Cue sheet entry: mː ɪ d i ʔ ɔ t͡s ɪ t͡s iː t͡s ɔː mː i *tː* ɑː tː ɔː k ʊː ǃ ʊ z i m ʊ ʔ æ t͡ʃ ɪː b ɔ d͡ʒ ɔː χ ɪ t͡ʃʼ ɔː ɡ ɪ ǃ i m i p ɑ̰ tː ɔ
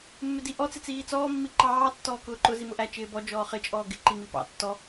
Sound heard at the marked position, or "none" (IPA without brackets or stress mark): ǃ